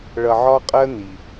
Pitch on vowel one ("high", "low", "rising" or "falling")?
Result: low